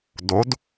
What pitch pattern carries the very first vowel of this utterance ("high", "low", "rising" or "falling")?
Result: rising